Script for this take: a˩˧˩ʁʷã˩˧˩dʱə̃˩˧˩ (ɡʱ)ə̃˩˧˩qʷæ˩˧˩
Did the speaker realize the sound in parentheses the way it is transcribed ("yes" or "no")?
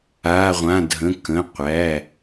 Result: no